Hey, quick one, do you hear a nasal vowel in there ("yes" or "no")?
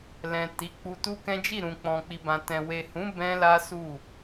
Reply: yes